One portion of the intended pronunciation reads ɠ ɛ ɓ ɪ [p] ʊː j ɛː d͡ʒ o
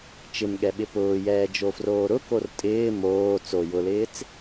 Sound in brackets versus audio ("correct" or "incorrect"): correct